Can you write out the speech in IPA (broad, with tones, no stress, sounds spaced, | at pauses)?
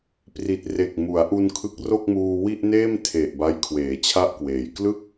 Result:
p r i˨˩ t̚ r e˨˩ k̚ m u˩˦ a̯ ʔ u˧ n kʰ ɯ˦˥ k̚ r o˥˩ k̚ m uː˧ w i˥˩ ʔ n eː˥˩ m tʰ e˨˩ ʔ b a˦˥ j kʰ w eː˩˦ t͡ɕʰ a˥˩ ʔ k w eː˩˦ j k l ɯ˥˩ k̚